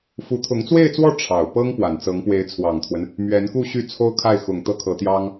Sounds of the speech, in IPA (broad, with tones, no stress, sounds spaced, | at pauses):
f u˧˥ t̪ʰ ʊ˧˥ ŋ t͡s w e˥˧ ɪ̯ t͡s w ɔ˥˩ ʈ͡ʂʰ ɑ˨˩ ʊ̯ p ɤ˥ ŋ p w a˨˩ n t͡s ɤ˧˥ ŋ p w e˧˥ ɪ̯ t͡sʰ w ɑ˨˩ ŋ t̪ʰ w ə˦ n | m ɥ ɛ˧˥ n k u˥˧ ɕ y˥˩ t͡sʰ o˥ ʊ̯ kʰ a˥˩ ɪ̯ x ʊ˨˩ ŋ t̪ ɤ˥˩ kʰ ɤ˧˥ t̪ j ɑ˥ ŋ